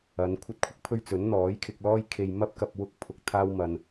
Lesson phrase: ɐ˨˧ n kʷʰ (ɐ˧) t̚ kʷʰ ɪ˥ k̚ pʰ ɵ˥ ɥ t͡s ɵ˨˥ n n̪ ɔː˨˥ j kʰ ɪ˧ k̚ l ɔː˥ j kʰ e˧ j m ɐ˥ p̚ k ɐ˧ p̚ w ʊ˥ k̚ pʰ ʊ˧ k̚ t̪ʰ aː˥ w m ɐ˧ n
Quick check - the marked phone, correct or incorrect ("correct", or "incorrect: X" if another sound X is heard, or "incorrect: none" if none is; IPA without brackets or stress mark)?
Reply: incorrect: ɐ˥